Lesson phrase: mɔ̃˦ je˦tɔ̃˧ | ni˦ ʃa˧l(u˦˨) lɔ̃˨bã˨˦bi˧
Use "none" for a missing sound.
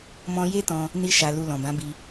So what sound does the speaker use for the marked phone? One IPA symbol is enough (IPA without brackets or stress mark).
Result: u˧